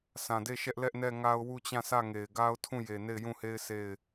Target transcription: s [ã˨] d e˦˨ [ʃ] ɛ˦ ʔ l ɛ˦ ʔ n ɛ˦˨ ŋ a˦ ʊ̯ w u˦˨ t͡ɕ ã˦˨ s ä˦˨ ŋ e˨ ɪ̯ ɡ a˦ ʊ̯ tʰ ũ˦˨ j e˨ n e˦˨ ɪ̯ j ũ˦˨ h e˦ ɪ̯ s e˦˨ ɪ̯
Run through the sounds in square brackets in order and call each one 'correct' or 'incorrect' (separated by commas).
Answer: correct, correct